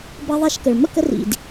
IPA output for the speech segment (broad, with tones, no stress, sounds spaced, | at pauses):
b ʌ˧ ðˤ ɛ˧ ʃ k ə˨ ɭ m ə̰˦˨ k ə˧ r ḭ˨ d